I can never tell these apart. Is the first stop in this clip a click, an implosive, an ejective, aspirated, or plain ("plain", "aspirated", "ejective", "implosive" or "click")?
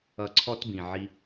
click